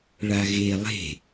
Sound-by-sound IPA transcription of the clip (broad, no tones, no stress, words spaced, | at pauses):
ɭaɣe lˠe̤